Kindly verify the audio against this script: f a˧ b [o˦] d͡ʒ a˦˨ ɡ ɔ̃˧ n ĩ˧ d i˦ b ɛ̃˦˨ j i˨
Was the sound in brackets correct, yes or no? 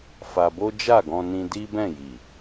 yes